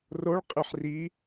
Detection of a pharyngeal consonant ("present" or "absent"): present